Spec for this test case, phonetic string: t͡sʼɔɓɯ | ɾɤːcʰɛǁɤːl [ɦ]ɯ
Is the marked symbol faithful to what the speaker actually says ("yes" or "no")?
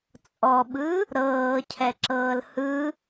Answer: no